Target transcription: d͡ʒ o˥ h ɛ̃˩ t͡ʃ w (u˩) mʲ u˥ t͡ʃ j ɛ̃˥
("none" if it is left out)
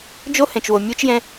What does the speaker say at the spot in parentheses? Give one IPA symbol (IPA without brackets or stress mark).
o˩